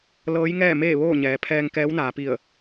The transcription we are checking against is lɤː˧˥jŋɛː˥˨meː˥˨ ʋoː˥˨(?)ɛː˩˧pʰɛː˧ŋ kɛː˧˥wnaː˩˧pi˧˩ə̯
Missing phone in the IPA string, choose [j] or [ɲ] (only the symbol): ɲ